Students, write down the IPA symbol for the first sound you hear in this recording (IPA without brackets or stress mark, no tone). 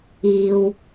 iː